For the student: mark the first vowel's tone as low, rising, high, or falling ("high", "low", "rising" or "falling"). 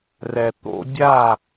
low